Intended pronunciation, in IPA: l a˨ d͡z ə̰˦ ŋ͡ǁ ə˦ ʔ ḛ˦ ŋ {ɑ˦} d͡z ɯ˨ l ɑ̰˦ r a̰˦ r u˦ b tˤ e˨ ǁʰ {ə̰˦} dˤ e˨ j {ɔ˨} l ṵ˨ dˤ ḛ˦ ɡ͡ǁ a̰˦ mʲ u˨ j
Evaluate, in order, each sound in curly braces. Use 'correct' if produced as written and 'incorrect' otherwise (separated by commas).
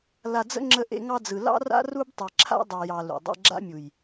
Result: correct, incorrect, incorrect